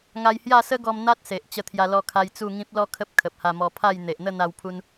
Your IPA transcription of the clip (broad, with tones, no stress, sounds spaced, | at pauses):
ŋ a˧ j h j a˥˧ s ə˦ ɡ ɔ˧ m n̪ a˦ t̚ s e˨ ʔ t͡ɕ ə˧ t̪ʰ j a˧ l ɔ˧ kʰ a˧ j t͡s u˥˧ ŋ ĩ˦ p̚ l ɔ˦ kʰ ə˦ p̚ kʰ ə˨ p̚ h a˧ m ɔ˧ pʰ a˥˧ j n̪ e˨ ʔ n̪ ə˥˧ n̪ a˧ w pʰ u˧ n